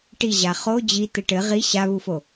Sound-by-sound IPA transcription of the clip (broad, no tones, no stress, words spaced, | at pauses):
ʈiʑa χo d͡ʑi t̪ɘʈɘ ʁi ɕaβufo